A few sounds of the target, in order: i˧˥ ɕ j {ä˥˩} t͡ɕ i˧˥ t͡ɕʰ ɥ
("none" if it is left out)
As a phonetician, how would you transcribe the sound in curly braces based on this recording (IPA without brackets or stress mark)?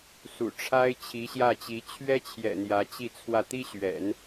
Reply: ä˥˩